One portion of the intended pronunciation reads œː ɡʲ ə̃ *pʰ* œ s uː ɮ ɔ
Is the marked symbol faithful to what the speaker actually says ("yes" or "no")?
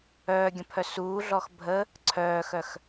yes